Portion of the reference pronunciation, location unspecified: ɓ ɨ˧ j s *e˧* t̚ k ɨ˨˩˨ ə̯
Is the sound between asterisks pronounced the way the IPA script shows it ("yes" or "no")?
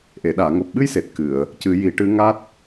no